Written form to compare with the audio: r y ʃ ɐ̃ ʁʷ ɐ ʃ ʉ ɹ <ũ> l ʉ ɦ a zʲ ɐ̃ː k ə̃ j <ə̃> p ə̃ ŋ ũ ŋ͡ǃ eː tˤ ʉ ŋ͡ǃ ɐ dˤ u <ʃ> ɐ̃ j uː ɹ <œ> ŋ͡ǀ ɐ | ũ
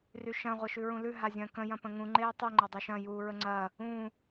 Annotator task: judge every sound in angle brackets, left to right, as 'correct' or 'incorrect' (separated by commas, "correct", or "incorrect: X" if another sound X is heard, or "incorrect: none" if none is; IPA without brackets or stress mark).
correct, incorrect: ɐ̃, correct, incorrect: ə